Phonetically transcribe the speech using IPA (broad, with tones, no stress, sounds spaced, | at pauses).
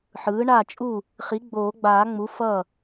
ħ ɯː˩˥ ɳ a˥˩ t͡ʃʼ u˥˩ | χ i˩˥ ɡ͡b oː˨˩˦ ɡ͡b aː˨˩˦ ŋ͡m u˩˥ f ʌː˥˩